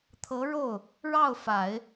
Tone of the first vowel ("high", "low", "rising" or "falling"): rising